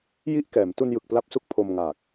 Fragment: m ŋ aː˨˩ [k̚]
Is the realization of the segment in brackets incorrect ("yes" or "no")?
no